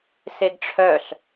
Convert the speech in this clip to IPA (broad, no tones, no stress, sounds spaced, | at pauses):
s e ɡ ʈ͡ʂʰ œ ɬ